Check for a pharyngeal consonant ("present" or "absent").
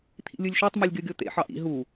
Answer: present